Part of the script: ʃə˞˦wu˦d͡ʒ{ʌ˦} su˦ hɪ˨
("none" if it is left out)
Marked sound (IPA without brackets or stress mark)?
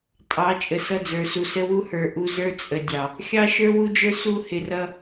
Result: ə˞˦